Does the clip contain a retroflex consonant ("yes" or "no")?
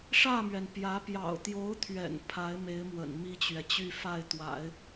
yes